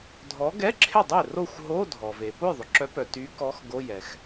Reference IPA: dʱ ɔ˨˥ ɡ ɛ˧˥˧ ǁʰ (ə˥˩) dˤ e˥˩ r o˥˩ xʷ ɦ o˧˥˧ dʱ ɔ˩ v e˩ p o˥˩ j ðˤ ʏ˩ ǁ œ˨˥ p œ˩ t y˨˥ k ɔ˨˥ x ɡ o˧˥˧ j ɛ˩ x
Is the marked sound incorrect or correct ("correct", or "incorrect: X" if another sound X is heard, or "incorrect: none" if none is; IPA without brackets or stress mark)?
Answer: incorrect: ɪ˥˩